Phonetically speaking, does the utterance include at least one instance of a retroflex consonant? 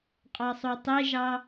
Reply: no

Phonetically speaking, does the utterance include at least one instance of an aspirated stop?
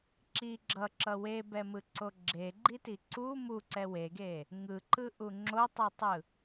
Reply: no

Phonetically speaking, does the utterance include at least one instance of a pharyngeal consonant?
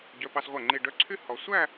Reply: no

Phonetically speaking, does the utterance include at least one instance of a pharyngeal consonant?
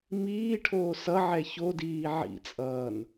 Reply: yes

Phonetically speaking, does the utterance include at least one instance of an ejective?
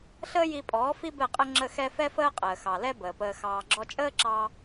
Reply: yes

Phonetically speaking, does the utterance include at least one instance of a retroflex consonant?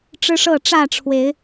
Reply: yes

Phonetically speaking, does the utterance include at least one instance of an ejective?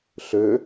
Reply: no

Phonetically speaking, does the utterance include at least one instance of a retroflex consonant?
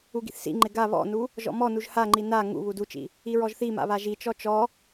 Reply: no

